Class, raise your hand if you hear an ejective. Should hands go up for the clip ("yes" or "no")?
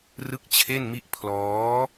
no